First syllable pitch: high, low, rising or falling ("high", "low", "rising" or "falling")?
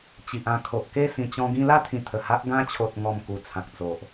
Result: low